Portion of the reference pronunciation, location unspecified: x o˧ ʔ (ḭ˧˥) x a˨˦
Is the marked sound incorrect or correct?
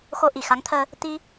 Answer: incorrect